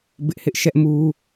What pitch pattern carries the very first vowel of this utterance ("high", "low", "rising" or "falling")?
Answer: high